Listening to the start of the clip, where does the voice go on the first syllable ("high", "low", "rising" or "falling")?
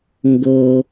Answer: low